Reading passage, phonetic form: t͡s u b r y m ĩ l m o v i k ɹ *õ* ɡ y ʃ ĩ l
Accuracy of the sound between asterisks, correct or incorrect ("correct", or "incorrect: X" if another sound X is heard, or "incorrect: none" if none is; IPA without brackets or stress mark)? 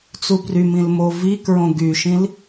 correct